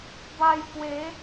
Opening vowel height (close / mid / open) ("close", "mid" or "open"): open